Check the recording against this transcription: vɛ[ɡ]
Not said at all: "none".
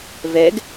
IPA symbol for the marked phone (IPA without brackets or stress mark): ɡ